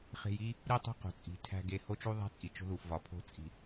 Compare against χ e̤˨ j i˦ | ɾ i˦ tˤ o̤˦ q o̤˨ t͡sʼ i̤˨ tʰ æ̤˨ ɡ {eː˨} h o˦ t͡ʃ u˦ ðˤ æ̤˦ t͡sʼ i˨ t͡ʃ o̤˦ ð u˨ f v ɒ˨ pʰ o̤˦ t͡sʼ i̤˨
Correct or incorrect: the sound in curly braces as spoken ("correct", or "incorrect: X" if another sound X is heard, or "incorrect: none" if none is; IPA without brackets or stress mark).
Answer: incorrect: e˨